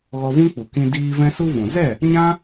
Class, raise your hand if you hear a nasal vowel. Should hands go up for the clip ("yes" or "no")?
yes